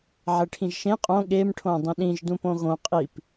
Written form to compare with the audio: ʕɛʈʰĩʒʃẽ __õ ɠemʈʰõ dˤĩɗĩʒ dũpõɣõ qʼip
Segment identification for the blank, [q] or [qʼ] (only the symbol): qʼ